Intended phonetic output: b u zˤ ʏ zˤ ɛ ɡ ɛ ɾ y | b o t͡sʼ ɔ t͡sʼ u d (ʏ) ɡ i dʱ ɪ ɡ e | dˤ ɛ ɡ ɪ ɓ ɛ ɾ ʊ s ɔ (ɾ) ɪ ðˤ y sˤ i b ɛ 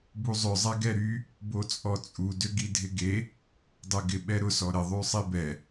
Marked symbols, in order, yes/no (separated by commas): yes, yes